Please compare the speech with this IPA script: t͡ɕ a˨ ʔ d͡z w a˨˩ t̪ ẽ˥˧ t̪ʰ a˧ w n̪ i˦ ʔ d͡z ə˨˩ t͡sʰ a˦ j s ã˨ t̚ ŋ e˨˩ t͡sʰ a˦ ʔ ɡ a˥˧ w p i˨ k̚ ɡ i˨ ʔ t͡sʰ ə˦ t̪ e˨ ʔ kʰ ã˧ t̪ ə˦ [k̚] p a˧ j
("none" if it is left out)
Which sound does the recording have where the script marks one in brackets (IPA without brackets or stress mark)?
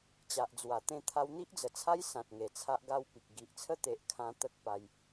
k̚